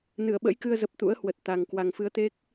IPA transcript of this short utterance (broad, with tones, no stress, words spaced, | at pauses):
nɨ˧˩ə̯ɓə̰˧˥jkɨ˧ə̯zə˨˩p̚ t̪ṵ˧˥ə̯hwə˨˩t̚ t̪a˨˩ŋ kwa˨˩ŋfɨ˨˦ə̯t̪e˦˥k̚